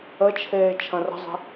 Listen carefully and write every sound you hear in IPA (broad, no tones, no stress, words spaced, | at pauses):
ət͡ʃʰeː t͡ʃʰɐ̃rə̤zˤe̤